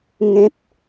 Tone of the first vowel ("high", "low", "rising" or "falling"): high